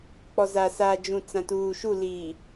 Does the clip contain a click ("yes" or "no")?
no